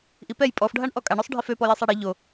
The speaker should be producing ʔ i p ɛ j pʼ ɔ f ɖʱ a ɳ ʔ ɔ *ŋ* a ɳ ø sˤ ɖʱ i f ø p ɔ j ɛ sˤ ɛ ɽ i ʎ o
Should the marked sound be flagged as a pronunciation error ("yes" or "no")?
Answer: yes